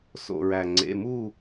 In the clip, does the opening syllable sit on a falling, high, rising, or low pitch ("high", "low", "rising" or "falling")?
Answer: low